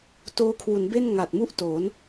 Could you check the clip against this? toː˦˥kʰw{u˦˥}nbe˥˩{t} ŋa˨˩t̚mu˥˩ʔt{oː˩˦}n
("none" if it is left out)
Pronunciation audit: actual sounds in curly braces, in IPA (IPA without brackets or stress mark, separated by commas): u˩˦, n, oː˩˦